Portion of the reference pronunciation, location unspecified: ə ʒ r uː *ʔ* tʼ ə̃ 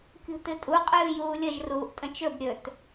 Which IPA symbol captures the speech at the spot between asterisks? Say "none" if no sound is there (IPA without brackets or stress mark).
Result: ʔ